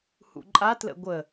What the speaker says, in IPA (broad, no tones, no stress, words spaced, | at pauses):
hṵǃʼa tlə̰ɡʷə